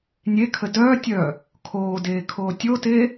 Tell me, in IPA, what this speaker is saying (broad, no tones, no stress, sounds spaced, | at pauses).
nʲ e kʰ ə d œː tʲ œː | kʰ oː d eː kʰ oː tʲ o t eː